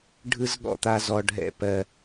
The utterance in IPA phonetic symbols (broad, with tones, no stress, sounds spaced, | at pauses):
ɖʱ ɯ˦ z ɠ ɔ̰˦˨ t̪ a˦ z ɔ˦ ɖʱ ɛ̰˦ p ɜ˦